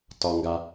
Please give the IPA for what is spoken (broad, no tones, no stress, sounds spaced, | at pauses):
t ɒ ŋ ɡ a